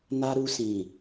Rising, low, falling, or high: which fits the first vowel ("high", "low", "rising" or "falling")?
high